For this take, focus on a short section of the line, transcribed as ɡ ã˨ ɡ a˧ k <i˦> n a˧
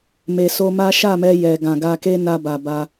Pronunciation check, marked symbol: incorrect: e˦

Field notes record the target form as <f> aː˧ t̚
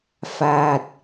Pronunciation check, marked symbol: correct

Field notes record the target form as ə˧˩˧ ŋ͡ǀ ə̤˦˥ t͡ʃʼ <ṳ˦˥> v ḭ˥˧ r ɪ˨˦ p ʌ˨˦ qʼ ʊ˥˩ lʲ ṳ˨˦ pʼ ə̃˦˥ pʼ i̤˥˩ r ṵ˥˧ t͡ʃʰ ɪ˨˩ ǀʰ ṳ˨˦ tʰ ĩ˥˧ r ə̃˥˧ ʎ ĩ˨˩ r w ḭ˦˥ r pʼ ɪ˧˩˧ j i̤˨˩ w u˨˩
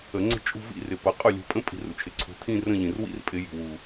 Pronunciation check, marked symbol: incorrect: ṳ˥˧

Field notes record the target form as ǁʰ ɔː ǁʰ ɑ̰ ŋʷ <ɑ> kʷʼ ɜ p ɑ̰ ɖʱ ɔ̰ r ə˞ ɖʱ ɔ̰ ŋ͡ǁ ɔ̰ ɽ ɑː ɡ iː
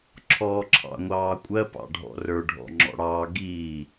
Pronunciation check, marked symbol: incorrect: ɑː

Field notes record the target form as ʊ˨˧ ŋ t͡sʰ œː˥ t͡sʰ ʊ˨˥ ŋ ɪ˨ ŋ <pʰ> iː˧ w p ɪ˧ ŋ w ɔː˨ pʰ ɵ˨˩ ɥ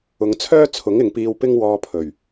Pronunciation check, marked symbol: incorrect: p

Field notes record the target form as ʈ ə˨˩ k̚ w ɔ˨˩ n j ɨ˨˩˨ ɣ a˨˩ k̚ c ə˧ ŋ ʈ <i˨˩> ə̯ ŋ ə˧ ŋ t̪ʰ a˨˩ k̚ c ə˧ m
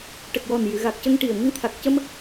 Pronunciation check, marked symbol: correct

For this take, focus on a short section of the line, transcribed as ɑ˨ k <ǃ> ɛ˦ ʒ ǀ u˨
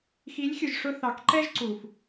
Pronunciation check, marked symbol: correct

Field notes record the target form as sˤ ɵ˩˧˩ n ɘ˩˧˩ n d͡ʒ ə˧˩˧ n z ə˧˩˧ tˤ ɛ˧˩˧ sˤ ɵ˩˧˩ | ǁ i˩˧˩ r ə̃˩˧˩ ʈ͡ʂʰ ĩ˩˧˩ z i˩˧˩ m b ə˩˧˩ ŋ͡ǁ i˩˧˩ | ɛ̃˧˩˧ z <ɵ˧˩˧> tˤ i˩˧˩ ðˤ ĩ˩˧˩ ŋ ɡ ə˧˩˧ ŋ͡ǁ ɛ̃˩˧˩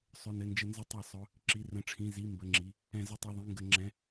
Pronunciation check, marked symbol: incorrect: ə˧˩˧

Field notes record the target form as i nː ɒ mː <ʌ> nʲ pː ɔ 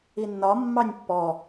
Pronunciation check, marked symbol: incorrect: ɑ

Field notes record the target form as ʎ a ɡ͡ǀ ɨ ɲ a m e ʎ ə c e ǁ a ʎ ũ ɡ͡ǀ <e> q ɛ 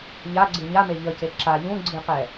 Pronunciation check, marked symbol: incorrect: ɨ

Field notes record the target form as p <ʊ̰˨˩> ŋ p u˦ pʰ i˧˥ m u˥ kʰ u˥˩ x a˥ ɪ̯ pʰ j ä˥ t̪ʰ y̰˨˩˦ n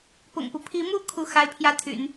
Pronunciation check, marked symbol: correct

